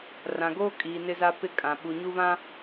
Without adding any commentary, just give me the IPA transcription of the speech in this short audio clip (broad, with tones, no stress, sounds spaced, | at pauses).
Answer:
r ã˨ ɡ oː˦ kʼ iː˨ n ɪ˦ z a˦ p ɪ˦ kʼ ã˨ ɓ u˨ ɲ u˦ β ã˦